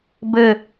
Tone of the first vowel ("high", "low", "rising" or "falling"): falling